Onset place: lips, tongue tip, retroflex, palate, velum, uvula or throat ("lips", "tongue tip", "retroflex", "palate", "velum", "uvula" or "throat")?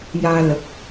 palate